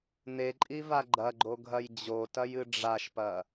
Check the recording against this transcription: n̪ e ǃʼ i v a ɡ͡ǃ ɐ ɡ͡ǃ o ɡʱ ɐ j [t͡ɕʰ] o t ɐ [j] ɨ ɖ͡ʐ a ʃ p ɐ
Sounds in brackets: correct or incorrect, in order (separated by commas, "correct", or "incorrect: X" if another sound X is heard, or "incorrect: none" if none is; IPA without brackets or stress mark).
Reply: incorrect: d͡ʑ, correct